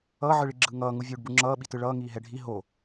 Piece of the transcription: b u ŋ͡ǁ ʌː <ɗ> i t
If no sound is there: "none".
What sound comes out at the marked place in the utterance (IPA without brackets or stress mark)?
ɓ